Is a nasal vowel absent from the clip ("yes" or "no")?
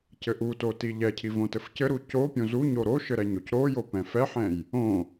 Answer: no